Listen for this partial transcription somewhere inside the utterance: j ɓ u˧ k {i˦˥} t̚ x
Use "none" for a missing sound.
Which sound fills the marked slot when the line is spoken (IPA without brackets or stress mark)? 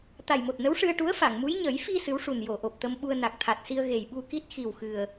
i˦˥